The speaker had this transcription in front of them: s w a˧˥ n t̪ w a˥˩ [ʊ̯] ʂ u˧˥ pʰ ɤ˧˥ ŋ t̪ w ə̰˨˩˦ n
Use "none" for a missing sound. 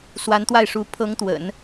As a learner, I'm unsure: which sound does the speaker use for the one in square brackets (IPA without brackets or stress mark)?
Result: ɪ̯